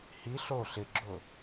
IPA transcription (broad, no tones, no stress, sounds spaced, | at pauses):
h i ɬ o ɬ ɪ ɡ͡ǁ ʊ